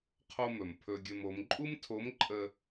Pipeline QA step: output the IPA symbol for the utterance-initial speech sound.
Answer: qʰ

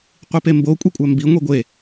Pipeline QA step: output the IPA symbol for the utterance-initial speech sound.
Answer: qʷ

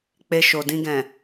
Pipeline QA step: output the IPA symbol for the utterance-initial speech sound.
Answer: k͡p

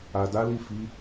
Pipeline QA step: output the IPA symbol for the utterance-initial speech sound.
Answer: a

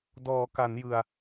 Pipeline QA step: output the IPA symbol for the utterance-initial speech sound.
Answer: d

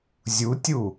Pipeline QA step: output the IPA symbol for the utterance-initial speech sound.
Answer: zʲ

